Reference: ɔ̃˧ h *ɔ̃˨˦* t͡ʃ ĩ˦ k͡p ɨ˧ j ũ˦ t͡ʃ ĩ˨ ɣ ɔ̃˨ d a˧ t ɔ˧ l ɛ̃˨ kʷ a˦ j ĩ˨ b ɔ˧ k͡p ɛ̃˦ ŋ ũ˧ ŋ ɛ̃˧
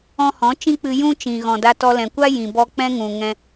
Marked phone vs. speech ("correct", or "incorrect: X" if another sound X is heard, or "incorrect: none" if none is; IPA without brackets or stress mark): correct